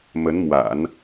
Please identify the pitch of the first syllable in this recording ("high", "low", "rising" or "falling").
rising